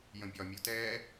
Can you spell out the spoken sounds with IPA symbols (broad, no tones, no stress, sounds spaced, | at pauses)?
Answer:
j ə̃ bʲ ɒ mʲ u t ɛː